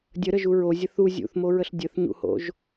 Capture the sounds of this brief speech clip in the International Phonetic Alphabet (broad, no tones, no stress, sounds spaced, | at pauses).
dʲ ə ɾ ə ʒ u ɹ o zʲ ə θ u zʲ ṵ θ m o ɹ ə ɬ dʲ ə θ ɲ ṵ h o̰ ʒ